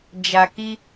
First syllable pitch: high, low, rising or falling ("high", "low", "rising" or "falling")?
low